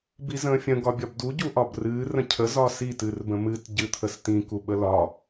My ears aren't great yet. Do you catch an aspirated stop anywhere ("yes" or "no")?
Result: yes